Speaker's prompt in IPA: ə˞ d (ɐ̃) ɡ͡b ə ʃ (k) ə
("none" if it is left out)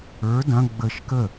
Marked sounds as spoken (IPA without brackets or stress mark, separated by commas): ɐ̃, k